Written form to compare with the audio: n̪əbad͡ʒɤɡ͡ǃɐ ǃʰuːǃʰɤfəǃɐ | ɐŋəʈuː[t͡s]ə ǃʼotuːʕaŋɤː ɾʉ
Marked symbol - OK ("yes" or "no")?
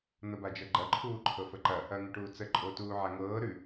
yes